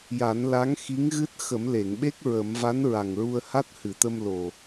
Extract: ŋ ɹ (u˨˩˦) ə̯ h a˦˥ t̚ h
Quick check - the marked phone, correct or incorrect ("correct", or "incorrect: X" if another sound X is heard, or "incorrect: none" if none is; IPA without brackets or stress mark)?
incorrect: u˧